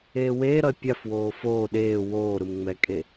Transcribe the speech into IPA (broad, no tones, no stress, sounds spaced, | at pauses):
eː w eː ɾ ʌ e̯ pʲ a f w oː f oː ɗ eː w oː ɾ ɯ m ŋ͡m ɛ kʼ e